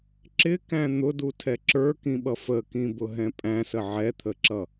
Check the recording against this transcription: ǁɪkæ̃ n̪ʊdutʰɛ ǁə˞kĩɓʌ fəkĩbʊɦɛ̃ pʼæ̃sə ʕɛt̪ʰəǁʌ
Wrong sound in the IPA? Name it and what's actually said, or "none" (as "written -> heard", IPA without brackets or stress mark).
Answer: none